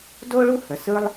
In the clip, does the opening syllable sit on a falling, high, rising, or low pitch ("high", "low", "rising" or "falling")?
high